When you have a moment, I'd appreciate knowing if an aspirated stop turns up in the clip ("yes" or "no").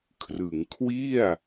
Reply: yes